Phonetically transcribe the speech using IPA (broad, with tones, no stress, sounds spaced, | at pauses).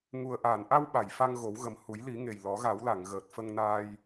ŋ u˨˩ ə̯ ʔ aː˨˩˨ n ʔ a˧ w ɓ a˨˩˨ j f a˧ ŋ ɣ o˨˩˦ w ɣ ə˨˩ m h u˨˩˦ j l i˨˩˦ ŋ e˨˩ j l ɔ˨˩˦ ɣ a˨˩˦ w l a˨˩˨ ŋ ɣ əː˨˩ t̚ f ə˧ ŋ n aː˧ j